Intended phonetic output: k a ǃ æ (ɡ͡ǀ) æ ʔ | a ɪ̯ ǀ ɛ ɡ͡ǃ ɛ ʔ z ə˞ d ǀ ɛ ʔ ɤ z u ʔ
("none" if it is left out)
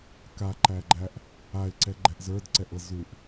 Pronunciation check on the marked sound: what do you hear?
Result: ɡ͡ǃ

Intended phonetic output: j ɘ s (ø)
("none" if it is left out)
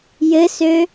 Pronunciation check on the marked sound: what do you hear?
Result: ø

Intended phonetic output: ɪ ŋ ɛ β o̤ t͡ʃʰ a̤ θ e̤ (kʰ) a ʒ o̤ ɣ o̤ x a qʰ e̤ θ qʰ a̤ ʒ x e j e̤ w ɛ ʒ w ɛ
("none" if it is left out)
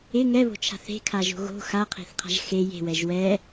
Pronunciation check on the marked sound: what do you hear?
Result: kʰ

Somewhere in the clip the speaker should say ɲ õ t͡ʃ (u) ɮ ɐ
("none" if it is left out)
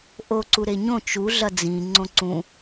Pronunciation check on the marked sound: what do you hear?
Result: u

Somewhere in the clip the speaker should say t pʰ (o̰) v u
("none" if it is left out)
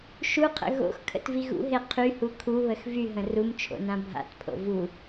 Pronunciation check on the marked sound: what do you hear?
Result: o̰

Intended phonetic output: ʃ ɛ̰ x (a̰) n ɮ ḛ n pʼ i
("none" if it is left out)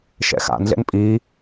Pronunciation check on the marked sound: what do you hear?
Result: a̰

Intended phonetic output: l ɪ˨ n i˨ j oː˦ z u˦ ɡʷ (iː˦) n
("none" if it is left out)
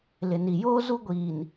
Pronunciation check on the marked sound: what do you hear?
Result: iː˨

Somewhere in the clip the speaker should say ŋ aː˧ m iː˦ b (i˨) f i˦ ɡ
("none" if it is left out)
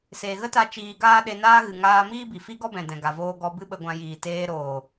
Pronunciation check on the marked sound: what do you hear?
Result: i˨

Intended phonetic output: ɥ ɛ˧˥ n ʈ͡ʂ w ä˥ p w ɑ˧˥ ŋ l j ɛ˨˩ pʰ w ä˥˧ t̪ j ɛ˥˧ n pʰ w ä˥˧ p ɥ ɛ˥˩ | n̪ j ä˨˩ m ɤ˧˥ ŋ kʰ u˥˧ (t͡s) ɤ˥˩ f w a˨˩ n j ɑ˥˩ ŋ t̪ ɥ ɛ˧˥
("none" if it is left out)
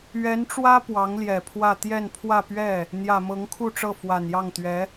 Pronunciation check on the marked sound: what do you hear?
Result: ʈ͡ʂ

